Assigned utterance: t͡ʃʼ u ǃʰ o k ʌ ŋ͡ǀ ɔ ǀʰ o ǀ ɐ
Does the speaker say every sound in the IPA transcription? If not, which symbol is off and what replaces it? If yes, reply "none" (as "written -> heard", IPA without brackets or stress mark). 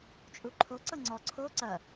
k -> ǀ